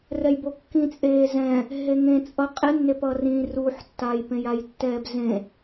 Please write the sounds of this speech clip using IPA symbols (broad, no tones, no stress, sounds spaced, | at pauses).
r ɛ j b o kː ĩ t͡sʼ eː z ɛ̃ | ɦ e ŋ ẽ t͡sʼ ʌ qʼ e nː e p ʌ r ĩ r u ħ tː a j p ẽ j a j tː ɛː b z ẽ